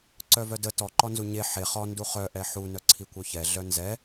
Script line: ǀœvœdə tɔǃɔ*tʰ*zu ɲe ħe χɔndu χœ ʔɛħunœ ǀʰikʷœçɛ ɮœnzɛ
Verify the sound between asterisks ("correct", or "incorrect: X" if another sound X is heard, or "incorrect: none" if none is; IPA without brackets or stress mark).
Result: incorrect: n